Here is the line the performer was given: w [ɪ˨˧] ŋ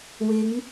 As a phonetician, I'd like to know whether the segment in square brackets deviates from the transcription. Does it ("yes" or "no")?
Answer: no